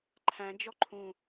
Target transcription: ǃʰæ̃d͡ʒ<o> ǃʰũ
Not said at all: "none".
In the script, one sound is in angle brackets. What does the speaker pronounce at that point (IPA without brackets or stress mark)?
ɔ